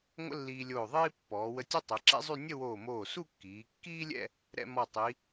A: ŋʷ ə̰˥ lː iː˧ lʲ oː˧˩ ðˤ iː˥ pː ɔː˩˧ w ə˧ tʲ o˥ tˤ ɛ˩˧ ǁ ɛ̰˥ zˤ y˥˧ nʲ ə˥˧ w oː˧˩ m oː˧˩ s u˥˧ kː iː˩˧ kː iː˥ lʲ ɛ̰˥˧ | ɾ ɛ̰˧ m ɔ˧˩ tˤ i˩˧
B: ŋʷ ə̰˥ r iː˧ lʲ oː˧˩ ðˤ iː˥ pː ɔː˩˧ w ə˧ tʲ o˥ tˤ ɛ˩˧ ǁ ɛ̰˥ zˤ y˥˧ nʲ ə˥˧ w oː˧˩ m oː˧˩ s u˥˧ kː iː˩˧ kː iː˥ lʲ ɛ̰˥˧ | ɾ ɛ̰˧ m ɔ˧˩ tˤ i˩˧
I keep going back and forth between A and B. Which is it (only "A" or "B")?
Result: A